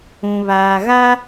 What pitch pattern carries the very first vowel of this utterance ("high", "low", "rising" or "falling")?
low